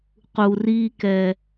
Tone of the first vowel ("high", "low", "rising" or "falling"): low